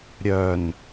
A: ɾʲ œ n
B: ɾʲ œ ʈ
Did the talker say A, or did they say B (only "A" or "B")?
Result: A